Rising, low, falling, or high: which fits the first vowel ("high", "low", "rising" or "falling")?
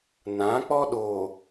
rising